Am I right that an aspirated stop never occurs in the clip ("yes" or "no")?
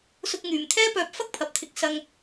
no